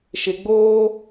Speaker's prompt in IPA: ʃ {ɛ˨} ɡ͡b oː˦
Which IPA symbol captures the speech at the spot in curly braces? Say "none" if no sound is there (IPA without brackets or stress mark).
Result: ɪ˨